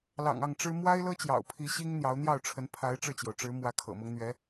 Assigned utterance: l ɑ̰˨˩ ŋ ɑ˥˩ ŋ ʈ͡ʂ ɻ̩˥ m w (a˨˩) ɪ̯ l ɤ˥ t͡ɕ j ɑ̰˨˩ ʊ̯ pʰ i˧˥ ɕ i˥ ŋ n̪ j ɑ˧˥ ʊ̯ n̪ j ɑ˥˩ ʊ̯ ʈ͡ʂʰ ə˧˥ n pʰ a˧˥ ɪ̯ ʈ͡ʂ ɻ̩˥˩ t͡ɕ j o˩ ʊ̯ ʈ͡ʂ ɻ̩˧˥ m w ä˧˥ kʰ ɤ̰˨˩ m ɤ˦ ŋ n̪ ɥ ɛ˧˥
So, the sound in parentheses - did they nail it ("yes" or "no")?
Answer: no